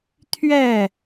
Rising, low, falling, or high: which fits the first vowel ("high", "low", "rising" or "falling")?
falling